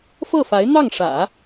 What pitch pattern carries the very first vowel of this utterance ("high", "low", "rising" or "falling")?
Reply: falling